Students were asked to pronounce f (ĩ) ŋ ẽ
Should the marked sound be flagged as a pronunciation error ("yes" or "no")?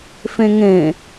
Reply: yes